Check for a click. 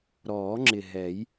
present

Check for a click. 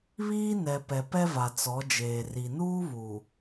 absent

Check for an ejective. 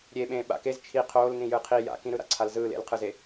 absent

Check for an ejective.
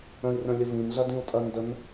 present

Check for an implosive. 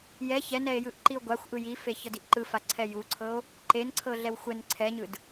absent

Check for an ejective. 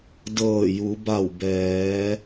absent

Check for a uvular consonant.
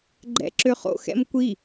present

